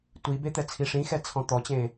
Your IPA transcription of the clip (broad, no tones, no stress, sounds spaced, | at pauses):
tʷ i b e t̪ ɛ t͡sʰ i ʂ ĩ x ɛ t͡sʰ ɔ̃ t̪ ɔ t͡ɕ ẽː